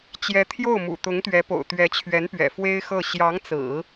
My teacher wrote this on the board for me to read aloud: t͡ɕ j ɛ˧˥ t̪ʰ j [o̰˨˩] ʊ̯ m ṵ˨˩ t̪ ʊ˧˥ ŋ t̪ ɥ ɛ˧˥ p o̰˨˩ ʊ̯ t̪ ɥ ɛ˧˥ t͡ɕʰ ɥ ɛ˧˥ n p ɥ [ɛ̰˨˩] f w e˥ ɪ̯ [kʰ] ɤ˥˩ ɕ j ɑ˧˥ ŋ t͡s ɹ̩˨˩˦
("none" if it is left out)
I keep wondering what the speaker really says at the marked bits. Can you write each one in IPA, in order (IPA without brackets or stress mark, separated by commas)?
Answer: o˥˩, ɛ̰˨˩, x